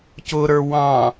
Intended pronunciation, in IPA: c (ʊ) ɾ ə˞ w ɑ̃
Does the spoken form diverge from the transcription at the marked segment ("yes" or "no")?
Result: no